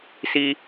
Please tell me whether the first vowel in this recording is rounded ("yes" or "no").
no